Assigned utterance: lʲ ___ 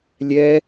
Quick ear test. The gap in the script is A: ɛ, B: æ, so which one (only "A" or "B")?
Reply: A